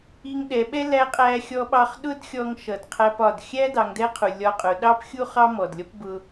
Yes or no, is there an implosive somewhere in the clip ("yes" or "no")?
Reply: yes